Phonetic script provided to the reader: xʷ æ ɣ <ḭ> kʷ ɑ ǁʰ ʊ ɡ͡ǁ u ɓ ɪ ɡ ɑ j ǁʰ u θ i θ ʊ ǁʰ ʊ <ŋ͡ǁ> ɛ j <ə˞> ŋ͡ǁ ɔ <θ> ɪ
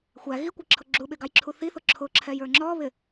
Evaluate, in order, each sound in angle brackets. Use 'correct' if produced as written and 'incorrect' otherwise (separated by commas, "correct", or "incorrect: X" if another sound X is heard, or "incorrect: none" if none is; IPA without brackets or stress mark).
incorrect: i, incorrect: ǁʰ, correct, incorrect: β